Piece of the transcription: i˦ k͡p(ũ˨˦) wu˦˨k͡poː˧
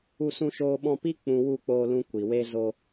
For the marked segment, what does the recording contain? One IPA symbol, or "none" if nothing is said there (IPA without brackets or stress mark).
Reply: ũ˧